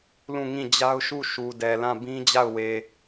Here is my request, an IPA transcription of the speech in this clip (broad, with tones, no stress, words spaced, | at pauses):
lũ˦˨ŋĩ˦˨d͡ʑa˦ʊ̯ ʃu˦˨ ʃu˨dɛ˨lã˦˨ bĩ˦d͡ʑa˦˨ʊ̯ we˨